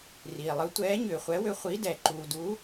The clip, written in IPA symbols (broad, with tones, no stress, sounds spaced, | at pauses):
r iː˩ lˠ ɯ˨˥ tʷ ɛː˨˥ ɲ ʏː˩ χʷ ɛ˨˥ w ʏ˨˥ χʷ i˨˥ d ɛ˩ ǃ uː˩ d u˨˥